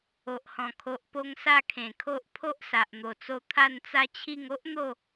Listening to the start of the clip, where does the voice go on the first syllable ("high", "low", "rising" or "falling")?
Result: low